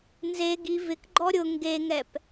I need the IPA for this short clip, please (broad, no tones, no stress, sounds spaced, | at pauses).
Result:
n z e ɡ i v ɪ k ɡ͡ǃ ɔ ɾʲ ʊ ŋ ɡ e ŋ ɛ p